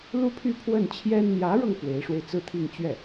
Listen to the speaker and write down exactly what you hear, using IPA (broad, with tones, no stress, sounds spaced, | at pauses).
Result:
l u˥ pʰ y˥˧ pʰ w ə˥˩ n t͡ɕʰ j ɛ˥ n n̪ j ä˧˥ ɻ ɤ˧ ŋ f w e˧˥ ɪ̯ ʂ w e˧ ɪ̯ t͡s ɹ̩˥˧ t̪ʰ i˥˧ ŋ t͡ɕ ɥ ɛ˥˩